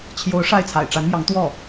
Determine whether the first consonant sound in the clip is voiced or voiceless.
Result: voiceless